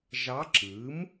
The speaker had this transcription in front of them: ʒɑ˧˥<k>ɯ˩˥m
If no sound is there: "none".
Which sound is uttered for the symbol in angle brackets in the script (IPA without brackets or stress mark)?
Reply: ǁ